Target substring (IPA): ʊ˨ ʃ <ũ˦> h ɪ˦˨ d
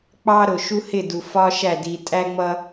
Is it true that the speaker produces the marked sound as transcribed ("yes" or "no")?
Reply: no